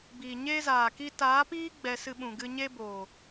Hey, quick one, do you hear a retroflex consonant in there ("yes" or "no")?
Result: no